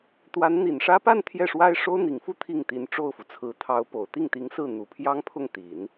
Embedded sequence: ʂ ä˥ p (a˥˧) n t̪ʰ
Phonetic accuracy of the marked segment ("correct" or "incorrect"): correct